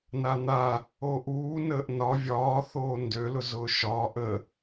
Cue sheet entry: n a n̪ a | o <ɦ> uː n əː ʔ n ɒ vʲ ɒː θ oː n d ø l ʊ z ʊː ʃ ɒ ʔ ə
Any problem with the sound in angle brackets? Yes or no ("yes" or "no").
yes